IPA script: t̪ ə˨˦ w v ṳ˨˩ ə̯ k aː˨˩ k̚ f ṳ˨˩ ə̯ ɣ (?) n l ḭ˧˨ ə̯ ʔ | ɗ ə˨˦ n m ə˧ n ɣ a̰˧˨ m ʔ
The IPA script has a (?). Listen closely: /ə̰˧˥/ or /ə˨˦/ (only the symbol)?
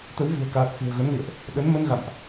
ə˨˦